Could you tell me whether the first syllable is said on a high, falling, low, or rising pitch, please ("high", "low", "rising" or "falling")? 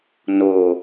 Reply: low